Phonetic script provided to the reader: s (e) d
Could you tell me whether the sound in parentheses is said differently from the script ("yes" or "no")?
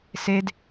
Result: no